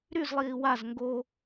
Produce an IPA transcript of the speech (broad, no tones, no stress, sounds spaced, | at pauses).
ɾ y z lˠ iː w a z ŋ ɡ o